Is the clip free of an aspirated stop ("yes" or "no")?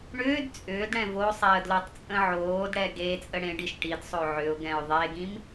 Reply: yes